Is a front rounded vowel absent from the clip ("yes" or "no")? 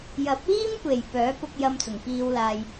no